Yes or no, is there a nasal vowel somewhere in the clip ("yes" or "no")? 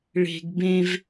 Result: yes